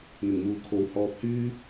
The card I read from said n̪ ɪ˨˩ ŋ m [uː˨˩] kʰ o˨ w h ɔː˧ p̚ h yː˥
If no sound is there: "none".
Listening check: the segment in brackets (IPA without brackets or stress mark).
uː˨